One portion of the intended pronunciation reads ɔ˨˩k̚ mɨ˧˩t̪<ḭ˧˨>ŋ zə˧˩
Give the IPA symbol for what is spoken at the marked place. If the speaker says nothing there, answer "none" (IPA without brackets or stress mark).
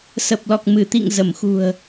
ḭ˧˨